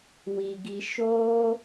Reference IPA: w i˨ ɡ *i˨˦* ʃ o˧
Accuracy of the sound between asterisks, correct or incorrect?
incorrect